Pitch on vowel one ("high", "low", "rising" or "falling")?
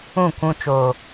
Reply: falling